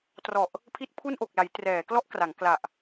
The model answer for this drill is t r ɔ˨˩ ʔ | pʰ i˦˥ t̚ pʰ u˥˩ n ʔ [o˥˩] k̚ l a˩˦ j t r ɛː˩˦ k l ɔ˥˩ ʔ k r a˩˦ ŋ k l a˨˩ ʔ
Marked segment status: incorrect: o˨˩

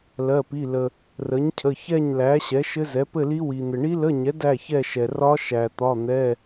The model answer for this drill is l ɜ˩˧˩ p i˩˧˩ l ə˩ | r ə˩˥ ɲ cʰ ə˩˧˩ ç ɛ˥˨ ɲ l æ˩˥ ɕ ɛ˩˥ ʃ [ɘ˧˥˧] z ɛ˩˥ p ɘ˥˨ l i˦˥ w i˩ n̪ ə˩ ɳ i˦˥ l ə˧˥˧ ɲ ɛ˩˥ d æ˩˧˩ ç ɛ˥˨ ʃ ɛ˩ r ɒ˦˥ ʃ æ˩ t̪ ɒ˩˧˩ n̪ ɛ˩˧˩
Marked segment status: incorrect: ɘ˦˥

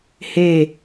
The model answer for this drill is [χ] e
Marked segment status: incorrect: h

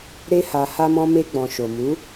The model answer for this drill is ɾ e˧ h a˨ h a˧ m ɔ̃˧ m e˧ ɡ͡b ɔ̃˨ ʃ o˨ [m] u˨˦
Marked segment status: correct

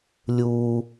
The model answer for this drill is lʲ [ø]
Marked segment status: incorrect: u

